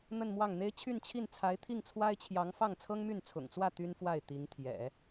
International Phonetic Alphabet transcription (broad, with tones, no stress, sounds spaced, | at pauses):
n̪ ə˥˧ n m w ɑ˥˩ ŋ n̪ e˥ ɪ̯ t͡ɕʰ y˥˧ n t͡ɕʰ i˥˩ n t͡sʰ a˧˥ ɪ̯ t̪ʰ i˥˩ ŋ t͡sʰ w a˥ ɪ̯ t͡ɕʰ j ɑ˧˥ ŋ f ɑ˥˩ ŋ t͡sʰ ɤ˥ ŋ m y˥˩ n t͡sʰ ʊ̰˨˩ ŋ t͡s w ä˥˩ t̪ y˥ n f w a˥˩ ɪ̯ t̪ i˧˥ ŋ t̪ʰ j ɛ̰˨˩˦